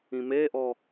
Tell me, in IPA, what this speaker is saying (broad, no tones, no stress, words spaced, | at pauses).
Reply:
ĩmeʔɔ